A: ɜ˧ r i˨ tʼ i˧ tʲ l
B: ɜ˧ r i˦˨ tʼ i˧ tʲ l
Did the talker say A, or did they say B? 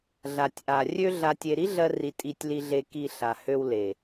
A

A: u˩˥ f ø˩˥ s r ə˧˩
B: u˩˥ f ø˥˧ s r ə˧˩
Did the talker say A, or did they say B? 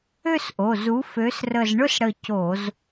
A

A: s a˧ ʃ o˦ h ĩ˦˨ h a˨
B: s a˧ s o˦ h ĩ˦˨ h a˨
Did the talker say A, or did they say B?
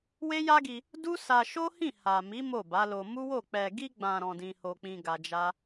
A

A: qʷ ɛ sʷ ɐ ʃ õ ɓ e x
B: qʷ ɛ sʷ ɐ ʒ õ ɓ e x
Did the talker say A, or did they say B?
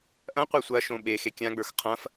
A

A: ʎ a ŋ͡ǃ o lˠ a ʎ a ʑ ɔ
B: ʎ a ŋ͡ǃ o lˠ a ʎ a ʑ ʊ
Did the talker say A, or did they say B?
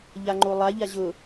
B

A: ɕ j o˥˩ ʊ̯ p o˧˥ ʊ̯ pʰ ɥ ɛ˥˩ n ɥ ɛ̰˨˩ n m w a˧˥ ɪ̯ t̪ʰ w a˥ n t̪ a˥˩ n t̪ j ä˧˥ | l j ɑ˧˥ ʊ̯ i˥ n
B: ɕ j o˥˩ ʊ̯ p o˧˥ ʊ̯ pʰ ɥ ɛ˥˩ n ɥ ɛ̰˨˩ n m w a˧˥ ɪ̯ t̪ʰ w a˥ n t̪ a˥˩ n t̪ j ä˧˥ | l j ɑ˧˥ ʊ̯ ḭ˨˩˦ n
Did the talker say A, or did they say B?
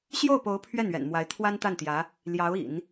B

